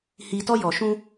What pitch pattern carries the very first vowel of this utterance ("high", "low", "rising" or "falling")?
low